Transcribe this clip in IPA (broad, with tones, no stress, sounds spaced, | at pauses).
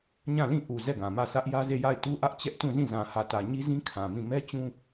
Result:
ɲ ã˦˨ l ĩ˦˨ ʔ u˨ z ɛ˦˨ ɡ ã˨ m ä˦˨ s ä˦ ʔ j ä˦ z e˦˨ j a˦˨ ɪ̯ t u˦ ʔ ä˦ ʔ t͡ɕ ɛ˦ ʔ t ũ˦˨ z ĩ˦˨ z ã˨ h ä˨ t ä˨ ɲ i˦ z ĩ˦ kʰ ã˨ m ĩ˦˨ m ɛ˦ t͡ɕ ũ˦